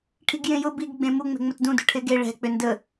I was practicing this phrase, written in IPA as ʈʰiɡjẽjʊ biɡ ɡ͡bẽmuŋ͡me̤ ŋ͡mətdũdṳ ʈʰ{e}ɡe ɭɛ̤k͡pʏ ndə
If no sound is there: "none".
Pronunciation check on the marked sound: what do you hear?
e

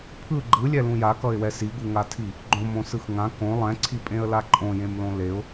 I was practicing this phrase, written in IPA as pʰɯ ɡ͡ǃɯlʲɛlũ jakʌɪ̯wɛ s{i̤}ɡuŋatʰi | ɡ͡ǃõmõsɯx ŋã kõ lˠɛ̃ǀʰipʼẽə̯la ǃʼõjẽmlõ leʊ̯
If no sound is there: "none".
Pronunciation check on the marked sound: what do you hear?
i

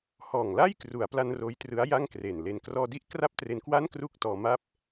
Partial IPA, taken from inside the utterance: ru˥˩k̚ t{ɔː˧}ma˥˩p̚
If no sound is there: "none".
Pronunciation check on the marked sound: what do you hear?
ɔː˧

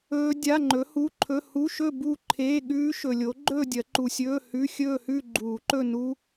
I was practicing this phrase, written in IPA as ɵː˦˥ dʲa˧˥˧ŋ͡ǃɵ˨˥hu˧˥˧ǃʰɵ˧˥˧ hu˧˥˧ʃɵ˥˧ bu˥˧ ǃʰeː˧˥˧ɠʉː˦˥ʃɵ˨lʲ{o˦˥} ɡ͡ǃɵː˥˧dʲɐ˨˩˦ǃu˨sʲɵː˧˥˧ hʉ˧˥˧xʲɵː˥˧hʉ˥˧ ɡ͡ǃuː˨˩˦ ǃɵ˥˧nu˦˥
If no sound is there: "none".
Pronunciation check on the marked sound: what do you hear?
o˨˥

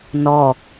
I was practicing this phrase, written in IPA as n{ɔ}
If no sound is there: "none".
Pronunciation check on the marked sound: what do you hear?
ɔ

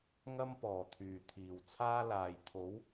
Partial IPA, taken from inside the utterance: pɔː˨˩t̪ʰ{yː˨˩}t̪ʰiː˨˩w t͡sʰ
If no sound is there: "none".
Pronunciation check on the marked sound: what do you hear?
yː˨˩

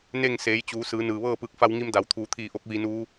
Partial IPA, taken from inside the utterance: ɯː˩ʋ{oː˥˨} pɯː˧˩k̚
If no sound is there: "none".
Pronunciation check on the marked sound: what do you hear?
ɤː˥˨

